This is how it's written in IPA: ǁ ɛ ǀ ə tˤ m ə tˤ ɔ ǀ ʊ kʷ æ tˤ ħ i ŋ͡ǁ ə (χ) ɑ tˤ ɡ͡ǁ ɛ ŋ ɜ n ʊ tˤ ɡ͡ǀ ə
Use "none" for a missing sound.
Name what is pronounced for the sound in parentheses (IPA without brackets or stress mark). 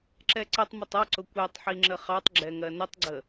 χ